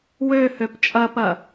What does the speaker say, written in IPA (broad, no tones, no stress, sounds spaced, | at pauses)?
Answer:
w ø h ø p t͡ʃʼ ɐ p ɐ